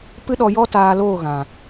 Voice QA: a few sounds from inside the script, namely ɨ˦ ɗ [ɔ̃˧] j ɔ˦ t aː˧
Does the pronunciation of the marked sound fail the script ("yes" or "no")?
yes